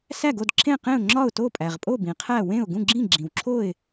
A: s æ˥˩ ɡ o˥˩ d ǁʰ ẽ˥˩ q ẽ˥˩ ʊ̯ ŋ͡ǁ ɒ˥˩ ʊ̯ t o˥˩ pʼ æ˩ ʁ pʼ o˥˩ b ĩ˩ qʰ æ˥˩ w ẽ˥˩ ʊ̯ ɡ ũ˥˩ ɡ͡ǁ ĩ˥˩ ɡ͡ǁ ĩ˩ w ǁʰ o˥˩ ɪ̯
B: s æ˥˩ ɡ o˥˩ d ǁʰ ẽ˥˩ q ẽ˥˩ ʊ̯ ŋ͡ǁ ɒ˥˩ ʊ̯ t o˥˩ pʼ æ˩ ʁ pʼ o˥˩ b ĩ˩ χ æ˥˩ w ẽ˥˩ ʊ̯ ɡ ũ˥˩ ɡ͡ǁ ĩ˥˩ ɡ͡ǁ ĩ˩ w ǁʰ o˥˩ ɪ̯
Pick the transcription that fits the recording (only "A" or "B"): A